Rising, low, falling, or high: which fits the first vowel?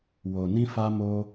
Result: low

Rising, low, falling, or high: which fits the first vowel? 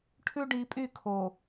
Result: high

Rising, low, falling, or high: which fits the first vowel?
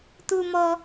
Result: high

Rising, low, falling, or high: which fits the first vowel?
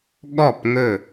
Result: falling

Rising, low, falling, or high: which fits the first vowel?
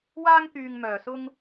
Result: high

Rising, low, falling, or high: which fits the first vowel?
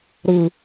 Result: low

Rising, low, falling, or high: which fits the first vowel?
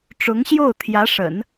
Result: rising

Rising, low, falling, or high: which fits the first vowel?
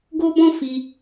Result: high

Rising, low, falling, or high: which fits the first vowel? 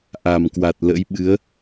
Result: low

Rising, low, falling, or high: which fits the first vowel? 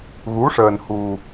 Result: rising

